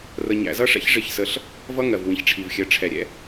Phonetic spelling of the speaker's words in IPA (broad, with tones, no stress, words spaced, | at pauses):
rə˧ɲæ̰˧zʌ˦ʂɛ̰˦ç ʐɪ˦˨çsə˧ɬ | vʌ˦ŋɜ˨v wĩ˨çʈ͡ʂʰi˨vxʲɜ˨˦ ʈ͡ʂʰɛ˨ ɾʲɛ̰˦